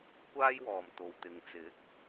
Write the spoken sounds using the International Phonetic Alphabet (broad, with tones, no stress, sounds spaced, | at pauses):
kʷ aː˥ j w ɔː˨ m t̪ o˨ w t̪ ɪ˨ ŋ t͡s ɪ˨˥ k̚